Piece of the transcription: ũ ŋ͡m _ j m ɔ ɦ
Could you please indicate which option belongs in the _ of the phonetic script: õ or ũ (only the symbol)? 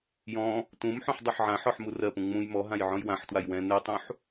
ũ